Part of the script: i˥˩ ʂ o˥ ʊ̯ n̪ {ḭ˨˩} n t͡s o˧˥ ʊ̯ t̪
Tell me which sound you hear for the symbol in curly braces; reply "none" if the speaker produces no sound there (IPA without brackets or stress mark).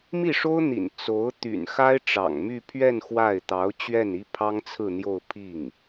ḭ˨˩